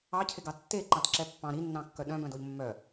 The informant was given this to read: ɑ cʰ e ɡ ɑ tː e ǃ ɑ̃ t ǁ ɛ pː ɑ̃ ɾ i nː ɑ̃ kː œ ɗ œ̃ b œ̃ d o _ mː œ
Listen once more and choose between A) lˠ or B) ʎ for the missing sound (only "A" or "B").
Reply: B